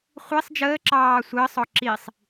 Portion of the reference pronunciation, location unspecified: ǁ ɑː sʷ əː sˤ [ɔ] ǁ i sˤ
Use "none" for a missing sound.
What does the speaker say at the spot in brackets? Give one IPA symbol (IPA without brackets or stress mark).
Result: ɔ